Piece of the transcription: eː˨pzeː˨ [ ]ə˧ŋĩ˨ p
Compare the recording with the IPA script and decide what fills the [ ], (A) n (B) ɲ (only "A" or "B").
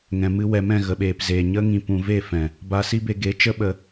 B